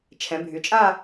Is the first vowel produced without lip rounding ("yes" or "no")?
yes